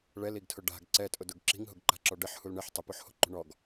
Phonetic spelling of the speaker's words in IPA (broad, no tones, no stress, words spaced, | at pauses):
ɭɛliɡtʰʊ ɖa̤ɡ ǀɛtʼʊdʊɡ ǁi̤ŋɦʊɡǃa̤ǁɔ ɖɪħhul ɳɪħ tˤɪpoħho̤ǃṳ ɳɔɡ